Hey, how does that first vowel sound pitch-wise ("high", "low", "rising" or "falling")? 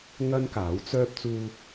high